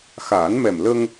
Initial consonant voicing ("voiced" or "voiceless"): voiceless